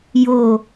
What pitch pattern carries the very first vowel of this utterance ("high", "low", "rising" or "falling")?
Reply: falling